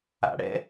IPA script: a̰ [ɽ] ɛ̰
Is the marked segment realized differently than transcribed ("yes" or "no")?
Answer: no